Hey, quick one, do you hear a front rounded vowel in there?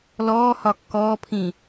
no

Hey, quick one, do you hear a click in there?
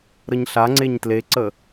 yes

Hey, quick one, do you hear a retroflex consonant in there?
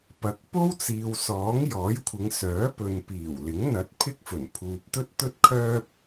no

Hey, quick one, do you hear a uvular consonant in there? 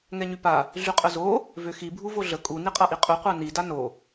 yes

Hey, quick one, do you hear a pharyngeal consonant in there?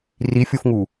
no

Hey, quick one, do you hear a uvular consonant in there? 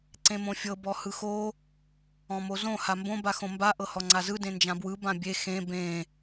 no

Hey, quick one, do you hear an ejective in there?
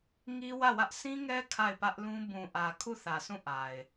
no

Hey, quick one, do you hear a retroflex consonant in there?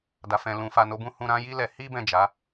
no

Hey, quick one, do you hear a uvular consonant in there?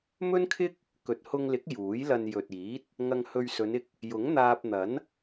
no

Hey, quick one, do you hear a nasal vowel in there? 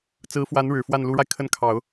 no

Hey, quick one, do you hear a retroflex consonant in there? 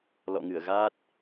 no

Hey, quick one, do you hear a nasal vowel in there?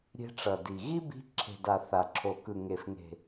no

